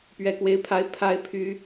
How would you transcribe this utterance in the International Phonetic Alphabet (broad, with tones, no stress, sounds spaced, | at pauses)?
p ɥ ɛ˥ k w e˥ ɪ̯ pʰ a˥ ɪ̯ pʰ a˥ ɪ̯ pʰ y˥